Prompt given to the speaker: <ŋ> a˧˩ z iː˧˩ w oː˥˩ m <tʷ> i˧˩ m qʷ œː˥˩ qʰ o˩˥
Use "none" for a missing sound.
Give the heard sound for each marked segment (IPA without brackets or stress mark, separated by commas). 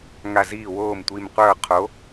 ŋ, tʷ